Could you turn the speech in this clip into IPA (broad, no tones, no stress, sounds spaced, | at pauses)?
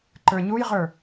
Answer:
ǃ ə˞ ɲ u j ʁ ə˞